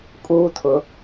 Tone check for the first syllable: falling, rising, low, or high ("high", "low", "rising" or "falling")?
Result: high